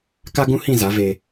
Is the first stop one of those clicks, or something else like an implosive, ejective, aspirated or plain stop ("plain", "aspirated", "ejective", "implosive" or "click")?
plain